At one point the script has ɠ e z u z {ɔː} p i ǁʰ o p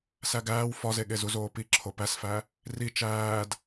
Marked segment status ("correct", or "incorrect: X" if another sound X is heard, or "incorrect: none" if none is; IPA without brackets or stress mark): incorrect: oː